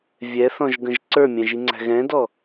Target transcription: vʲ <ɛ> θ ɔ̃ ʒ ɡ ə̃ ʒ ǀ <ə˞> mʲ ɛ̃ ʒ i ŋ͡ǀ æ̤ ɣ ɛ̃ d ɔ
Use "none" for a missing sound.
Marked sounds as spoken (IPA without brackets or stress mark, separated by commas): ɛ, ə˞